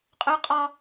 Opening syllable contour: high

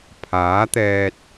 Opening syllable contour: rising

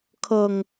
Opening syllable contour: low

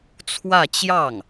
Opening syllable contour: falling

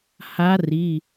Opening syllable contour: rising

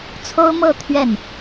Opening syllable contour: high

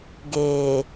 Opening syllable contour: low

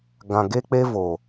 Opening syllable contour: low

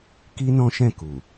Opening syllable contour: high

